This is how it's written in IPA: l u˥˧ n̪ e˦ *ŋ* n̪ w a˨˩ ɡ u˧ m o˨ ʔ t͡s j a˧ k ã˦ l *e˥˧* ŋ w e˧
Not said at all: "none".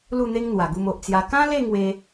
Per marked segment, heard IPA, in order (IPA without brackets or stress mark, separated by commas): ŋ, e˥˧